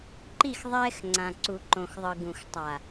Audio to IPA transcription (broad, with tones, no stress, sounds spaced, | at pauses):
ǃ i˦˨ x ðˤ ɛː˦ x ŋ͡ǀ ã˨ ǀ u˨ ǃ õ˨ x ðˤ ɯ˨ ɡ ũ˨ x tˤ a˨